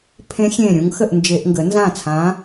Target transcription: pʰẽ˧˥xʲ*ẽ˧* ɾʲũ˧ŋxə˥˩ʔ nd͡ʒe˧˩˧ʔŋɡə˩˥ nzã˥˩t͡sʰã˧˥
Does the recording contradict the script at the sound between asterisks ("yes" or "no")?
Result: yes